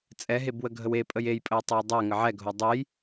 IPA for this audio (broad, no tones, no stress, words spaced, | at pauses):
t͡sʼɛɦebwəɡʱəw epʼəj ejpʼəwtˤoj dˤɛ ŋəʕɛɡʱo dˤej